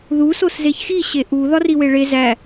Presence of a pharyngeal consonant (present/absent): absent